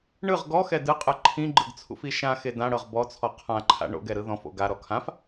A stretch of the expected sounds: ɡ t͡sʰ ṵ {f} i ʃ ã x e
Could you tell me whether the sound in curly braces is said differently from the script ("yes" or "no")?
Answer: no